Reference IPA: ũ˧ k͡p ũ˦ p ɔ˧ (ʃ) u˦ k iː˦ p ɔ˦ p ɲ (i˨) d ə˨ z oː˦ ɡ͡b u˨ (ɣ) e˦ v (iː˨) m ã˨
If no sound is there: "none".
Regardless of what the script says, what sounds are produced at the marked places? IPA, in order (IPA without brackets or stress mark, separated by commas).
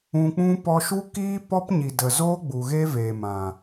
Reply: ʃ, i˨, ɣ, eː˨